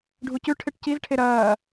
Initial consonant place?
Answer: retroflex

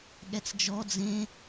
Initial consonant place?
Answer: velar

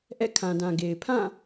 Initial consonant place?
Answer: glottal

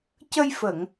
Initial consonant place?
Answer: palatal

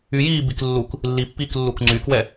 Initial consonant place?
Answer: palatal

